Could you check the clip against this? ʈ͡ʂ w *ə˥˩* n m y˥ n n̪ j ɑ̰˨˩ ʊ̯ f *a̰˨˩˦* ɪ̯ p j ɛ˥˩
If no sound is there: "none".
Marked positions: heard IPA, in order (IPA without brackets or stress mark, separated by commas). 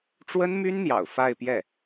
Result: ə˥, a˥˧